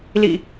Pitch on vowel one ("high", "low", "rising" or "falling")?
low